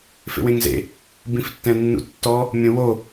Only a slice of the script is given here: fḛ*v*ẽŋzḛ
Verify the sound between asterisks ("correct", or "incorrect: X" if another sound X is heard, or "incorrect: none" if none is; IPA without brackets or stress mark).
incorrect: w